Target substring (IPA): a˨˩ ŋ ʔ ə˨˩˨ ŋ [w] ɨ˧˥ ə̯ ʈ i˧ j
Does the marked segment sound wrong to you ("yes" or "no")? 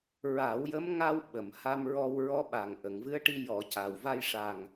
yes